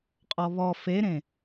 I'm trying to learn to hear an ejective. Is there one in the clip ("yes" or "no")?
yes